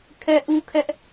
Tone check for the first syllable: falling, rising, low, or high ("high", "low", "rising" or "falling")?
high